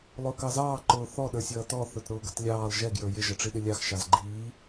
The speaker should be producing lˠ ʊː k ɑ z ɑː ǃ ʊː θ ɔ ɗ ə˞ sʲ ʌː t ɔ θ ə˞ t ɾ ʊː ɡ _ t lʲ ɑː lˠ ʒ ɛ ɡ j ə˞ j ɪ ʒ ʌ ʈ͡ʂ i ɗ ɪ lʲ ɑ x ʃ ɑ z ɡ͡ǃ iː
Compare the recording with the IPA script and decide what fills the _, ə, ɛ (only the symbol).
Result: ə